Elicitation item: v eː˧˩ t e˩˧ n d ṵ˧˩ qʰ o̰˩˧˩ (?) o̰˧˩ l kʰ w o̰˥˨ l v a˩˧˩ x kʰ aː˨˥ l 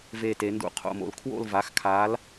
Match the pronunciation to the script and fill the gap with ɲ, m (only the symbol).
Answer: m